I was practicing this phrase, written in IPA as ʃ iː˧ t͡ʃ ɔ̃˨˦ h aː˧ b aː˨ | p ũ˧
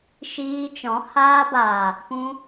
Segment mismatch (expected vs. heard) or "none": none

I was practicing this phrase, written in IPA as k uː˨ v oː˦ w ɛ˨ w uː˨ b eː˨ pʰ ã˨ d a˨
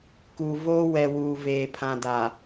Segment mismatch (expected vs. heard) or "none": b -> v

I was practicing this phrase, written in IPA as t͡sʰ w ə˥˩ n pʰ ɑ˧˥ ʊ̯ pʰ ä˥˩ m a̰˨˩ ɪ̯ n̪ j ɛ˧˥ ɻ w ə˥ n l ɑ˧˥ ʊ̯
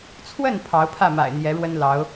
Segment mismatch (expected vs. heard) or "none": none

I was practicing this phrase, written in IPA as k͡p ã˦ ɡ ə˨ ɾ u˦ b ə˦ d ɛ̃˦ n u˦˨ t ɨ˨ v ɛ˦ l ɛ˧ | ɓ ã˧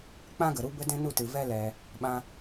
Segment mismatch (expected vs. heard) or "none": none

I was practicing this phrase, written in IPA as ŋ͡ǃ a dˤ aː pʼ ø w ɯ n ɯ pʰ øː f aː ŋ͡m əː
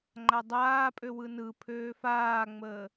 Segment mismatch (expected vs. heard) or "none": none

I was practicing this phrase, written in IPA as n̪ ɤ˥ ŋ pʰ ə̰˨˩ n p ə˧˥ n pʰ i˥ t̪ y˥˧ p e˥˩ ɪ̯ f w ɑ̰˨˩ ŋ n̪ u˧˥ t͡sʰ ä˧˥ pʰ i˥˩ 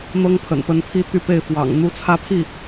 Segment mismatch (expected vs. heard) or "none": none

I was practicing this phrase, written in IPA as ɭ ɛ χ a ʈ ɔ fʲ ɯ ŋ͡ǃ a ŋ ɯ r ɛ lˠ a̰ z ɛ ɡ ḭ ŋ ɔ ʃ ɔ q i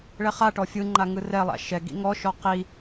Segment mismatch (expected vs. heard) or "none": z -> ʃ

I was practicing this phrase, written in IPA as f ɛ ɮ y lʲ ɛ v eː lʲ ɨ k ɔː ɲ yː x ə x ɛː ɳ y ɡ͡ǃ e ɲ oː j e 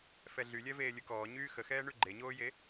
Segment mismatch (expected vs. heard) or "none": none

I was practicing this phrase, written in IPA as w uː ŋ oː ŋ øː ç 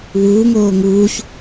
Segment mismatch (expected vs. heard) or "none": øː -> uː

